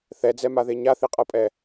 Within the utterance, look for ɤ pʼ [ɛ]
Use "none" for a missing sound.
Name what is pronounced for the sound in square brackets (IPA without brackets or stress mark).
ɛ